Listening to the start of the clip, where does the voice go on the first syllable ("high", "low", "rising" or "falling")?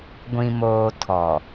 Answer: low